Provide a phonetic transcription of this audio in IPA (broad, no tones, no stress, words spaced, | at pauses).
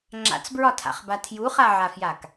ŋ͡ǁa̰t͡sbɹɒtʰa̰χba tʰjuχaʕafjak